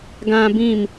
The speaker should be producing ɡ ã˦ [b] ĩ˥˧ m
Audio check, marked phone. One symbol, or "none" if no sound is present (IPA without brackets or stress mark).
b